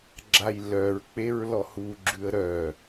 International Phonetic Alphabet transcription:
ɡ͡ǁ a j l œ ɹ k͡p e ɹ l ɔ h u ɡ͡ǁ ʉ ə̯ ɾ œ

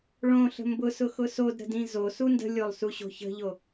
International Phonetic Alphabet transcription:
ɭ õ ɬ ə̤ m b ʊ s ʊ x ʊ s o d ɾ ə̤ d ĩ z o s u n d ə̤ lʲ o lˠ s u ɕ o̤ ç ə̤ ʎ o

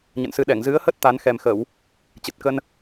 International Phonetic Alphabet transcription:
ɲ ə̰˧˨ n s ɨ˧ ɗ ɛ˧˩ ŋ z ɨ˨˦ ə̯ h ə˦˥ t̚ t̪ a˨˦ n x ɛ˨˩ m x ə˧˩˨ w | t͡ɕ ɨ˨˩ t̚ k ə˧ n

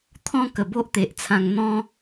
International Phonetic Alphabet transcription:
t̪ʰ ɔ̃˦ k ə˨˩ b o˦ ʔ t̪ e˨ ʔ t͡sʰ ã˧ ŋ n̪ ɔ̃˦

